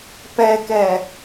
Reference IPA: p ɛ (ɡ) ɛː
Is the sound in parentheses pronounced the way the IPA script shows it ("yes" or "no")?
no